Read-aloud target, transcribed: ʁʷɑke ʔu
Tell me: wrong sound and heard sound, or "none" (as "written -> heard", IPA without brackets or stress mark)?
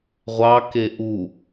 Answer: none